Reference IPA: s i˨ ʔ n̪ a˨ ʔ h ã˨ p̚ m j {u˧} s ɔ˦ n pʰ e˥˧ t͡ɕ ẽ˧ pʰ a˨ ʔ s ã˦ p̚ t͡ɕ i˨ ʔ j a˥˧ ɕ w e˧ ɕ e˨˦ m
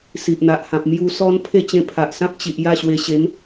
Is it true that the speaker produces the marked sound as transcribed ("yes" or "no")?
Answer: yes